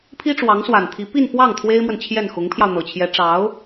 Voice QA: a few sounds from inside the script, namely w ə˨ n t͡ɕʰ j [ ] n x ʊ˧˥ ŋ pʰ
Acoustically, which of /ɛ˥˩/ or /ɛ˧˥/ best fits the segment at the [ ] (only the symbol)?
ɛ˥˩